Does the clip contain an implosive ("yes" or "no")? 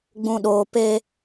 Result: yes